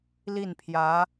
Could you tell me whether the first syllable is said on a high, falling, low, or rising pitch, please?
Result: falling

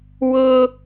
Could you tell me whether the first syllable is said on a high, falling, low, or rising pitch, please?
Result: high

